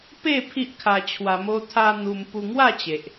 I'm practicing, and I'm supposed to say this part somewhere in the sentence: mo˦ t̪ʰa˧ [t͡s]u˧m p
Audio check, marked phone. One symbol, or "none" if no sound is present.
n̪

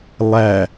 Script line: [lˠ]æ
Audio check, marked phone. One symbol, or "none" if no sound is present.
lˠ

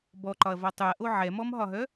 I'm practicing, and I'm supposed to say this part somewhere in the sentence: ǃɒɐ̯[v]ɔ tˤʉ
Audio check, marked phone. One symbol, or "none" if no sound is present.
v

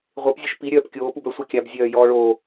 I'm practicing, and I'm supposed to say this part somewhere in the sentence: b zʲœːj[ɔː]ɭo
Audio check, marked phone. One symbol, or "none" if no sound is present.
ɔː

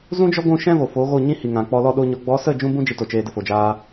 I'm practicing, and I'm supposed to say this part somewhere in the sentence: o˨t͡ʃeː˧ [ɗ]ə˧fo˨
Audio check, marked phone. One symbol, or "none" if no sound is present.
d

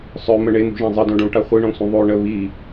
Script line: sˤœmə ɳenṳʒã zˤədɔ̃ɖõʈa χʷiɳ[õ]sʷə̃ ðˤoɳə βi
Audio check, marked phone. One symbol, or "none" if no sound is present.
ɔ̃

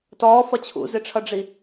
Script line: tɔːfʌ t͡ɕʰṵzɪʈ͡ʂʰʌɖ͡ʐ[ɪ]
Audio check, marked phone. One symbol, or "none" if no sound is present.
i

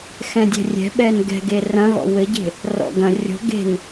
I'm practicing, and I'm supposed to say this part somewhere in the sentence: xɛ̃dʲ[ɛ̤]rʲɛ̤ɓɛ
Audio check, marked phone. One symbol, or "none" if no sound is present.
ɛ̤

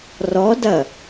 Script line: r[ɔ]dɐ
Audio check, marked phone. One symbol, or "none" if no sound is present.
ɔ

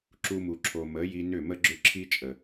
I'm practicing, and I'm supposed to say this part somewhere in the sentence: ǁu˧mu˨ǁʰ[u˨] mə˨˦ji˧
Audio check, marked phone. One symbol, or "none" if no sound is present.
o˨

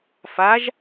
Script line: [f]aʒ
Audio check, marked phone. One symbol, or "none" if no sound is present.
f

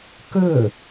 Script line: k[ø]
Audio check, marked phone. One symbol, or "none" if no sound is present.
ɵ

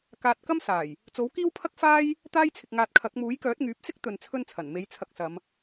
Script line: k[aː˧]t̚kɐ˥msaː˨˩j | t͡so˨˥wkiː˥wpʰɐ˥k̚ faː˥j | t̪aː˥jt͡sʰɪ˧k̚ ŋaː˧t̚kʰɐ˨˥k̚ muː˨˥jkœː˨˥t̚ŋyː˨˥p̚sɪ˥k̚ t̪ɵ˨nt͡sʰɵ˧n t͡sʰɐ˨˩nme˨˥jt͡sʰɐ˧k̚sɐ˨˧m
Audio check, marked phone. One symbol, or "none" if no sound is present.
aː˧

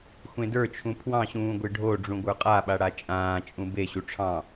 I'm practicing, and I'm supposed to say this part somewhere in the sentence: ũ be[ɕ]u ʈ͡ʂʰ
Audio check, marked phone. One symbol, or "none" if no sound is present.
ɕ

